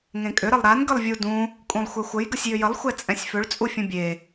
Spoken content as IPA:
ŋ ẽ kʼ ʏ ɾ ə lˠ ɾ a n ɡ ə lˠ vʲ u d ũ | kʼ ũ lˠ xʷ ɛ xʷ ə j ɡ ə sʲ j ʏ j ə lˠ xʷ ɛ t͡sʼ ɛ̃ sʲ f ʏ ɭ t͡sʼ u fʲ ũ bʲ e

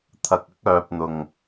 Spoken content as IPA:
t̪ʰ ɐ˨ k̚ ɐ˥ k̚ œː˨ p̚ n̪ ʊ˨˩ ŋ

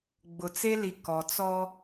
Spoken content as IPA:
ɡ͡b ʊ˨ t͡s e˦ l i˨ k ɔ˨ t͡s ɔ˦

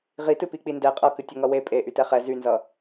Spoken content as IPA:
ʁ i t ɨ p i k͡p i n d ɛ qʼ ʌ k ɨ tʲ ʌ ŋ ʌ w e pʼ e ʔ y t ɛ χ ɛ z y n z ʌ

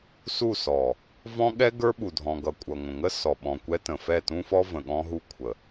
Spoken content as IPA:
s u˦˨ s ɔ˨ | v ɔ̃˦ ɠ ɛ˦ ɡ ə˞˦ ɓ u˨ dʱ ɔ̃˨ ɡ ʌ˨ kʷʼ ʌ˨ ŋʷ ə̃˨ ŋ ə˦ s ɔ˨ ɓ ɔ̃˨ kʷ ɛ˦ t ə̃˨ f ɛ˦˨ t ũ˦ f ɔ˦ v ə̃˨ ɠ ɔ̃˦ ɦ u˦ kʷʰ ə˨

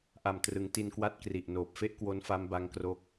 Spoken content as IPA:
ʔ a˨˩ m t r ɯ˩˦ ŋ t i˧ n k w a˦˥ t̚ k r i˨˩ ʔ n oː˨˩ p̚ f e˥˩ ʔ k w o˦˥ n f a˦˥ m b a˦˥ ŋ k r o˦˥ k̚

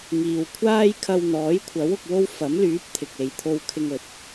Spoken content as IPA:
ŋ iː˨ w kʷʰ aː˥ j kʰ ɐ˧ w n̪ ɔː˨˥ j kʷʰ ɐ˨˥ w ʊ˨ k̚ w o˥ w f ɐ˨˥ m l yː˨˥ p̚ t̪ʰ ɪ˨ k̚ e˨˧ j t̪ʰ o˧ w kʰ ɪ˧ ŋ ɵ˨ t̚

